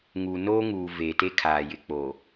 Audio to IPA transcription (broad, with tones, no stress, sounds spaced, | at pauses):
ŋ u˨ n oː˦ ŋ uː˨ v eː˨ t e˦ kʰ aː˨ j ɪ˨ k͡p oː˨